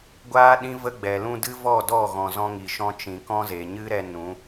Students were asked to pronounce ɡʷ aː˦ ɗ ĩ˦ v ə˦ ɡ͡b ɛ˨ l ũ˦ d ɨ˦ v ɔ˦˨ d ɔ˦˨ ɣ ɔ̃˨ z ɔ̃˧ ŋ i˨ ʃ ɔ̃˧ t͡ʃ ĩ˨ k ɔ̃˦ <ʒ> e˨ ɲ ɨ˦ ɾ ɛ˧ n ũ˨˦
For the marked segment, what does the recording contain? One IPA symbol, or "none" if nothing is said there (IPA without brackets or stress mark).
z